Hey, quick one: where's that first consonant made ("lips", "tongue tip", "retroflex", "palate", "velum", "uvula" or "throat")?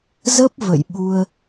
tongue tip